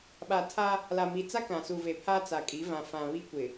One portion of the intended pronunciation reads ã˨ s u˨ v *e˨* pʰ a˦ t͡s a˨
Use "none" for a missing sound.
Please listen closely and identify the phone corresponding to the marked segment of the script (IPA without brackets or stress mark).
e˨